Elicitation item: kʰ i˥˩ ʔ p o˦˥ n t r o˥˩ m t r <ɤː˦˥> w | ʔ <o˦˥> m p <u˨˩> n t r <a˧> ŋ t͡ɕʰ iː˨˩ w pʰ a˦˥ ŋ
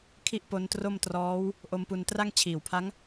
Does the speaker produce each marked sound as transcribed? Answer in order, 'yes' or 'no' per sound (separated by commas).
no, yes, no, no